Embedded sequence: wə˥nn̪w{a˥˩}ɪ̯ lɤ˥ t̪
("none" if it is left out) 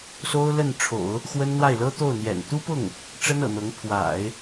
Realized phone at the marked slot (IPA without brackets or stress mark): a˥˩